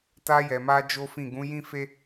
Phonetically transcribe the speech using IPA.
t a˧ j ɛ˨ m a˧ d͡ʒ o˦ f ĩ˦˨ ɡ ũ˨˦ j ĩ˦ f e˦

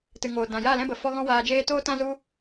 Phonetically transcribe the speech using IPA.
t ɨ˨ ŋ oː˨ d ã˨ j a˦˨ l ɛ̃˦ b ə˨ f ɔ˦ ɣ ɔ̃˦ w aː˧ d͡ʒ eː˦ t oː˦ t ã˦ z u˦

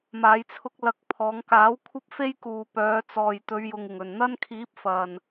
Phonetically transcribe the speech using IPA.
m aː˨˧ j t͡sʰ ʊ˧ k̚ l ɐ˨˥ k̚ pʰ ɔː˨˧ ŋ k aː˨˥ w kʷʰ ɐ˥ p̚ f e˥ j k uː˨ p œː˨˧ t͡s ɔː˨ j t̪ ɵ˨˧ ɥ j ʊ˨ ŋ ɪ˨˩ ŋ ɵ˨˩ n n̪ ɐ˥ n kʰ iː˨˥ p̚ f ɐ˨˩ n

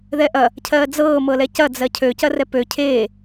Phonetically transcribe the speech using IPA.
ð ɛ ʔ ɐ | cʰ ɜː d͡z ɤː m ɤ l ɛ c ɐ d͡z ɜ cʰ ø c ɐ r ɛ p ø cʰ eː

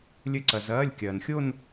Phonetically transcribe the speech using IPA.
lʲ ɘ˦˨ ǀ ɐ˩ z ɐː˩˧˩ lʲ kʲ ɐː˩ n xʲ o˦˨ n

